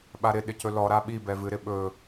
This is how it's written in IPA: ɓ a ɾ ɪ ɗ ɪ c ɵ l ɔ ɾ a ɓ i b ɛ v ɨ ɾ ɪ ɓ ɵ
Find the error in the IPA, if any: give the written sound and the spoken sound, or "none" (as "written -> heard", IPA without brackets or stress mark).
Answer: none